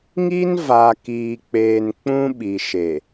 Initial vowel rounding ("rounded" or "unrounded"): unrounded